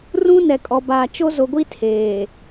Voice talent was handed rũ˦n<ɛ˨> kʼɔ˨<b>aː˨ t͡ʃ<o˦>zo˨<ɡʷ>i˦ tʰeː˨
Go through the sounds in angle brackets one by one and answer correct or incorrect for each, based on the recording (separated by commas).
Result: correct, correct, correct, correct